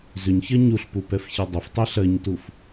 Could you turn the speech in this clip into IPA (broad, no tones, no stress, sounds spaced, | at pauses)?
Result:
z ʏ ɲ ç ɜ ɲ u ɬ p u p ɛ f ç i dˤ ʏ f tˤ i ɬ ɜ ɲ t u f